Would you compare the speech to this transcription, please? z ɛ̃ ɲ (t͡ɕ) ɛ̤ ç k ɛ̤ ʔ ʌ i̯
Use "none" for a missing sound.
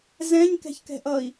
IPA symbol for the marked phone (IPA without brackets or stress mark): k